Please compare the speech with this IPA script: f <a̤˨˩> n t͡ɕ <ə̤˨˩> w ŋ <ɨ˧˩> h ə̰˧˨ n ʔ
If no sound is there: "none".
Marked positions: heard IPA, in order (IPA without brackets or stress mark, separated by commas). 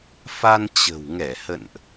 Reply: a˧, ə̤˨˩, ɛ˧˩